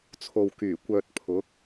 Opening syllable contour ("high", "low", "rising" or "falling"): low